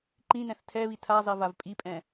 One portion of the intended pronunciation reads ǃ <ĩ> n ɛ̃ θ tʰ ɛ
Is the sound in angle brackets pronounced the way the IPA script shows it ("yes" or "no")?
yes